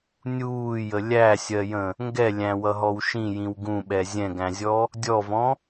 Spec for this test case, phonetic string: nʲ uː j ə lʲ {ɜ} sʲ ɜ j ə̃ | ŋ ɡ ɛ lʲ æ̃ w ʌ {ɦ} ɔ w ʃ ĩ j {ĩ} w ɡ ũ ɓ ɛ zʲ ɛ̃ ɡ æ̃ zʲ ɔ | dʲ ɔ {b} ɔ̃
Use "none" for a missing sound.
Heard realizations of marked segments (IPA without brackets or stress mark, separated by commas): æ, ɦ, ĩ, v